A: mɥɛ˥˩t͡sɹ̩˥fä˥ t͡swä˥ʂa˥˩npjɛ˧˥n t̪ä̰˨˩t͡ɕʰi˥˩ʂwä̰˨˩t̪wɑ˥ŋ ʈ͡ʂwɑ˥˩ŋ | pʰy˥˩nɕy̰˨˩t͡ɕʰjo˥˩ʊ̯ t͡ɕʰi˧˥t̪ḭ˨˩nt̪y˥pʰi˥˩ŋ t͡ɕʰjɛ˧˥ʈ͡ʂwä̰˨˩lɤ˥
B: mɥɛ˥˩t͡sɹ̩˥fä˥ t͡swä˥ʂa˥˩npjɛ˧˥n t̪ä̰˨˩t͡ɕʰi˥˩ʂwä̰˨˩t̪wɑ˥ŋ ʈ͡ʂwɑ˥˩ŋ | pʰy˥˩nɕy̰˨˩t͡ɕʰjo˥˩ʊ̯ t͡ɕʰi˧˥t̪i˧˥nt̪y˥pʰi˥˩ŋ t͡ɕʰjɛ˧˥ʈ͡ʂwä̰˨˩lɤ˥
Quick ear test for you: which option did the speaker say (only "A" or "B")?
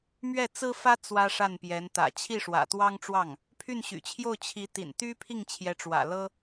A